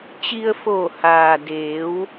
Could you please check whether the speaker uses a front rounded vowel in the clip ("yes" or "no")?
no